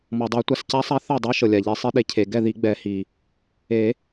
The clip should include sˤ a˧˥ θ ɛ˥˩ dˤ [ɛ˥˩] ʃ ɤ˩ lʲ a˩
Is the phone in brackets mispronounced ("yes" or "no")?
yes